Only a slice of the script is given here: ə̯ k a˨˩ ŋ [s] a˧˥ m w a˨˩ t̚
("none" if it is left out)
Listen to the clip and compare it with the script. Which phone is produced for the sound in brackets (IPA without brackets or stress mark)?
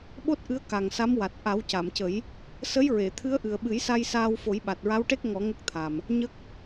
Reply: s